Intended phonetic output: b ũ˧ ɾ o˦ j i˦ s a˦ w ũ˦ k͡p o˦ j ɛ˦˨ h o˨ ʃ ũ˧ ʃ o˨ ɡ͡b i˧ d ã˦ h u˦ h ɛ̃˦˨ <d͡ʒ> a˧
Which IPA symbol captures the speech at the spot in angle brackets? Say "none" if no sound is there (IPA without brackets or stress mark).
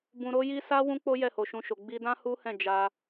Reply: d͡ʒ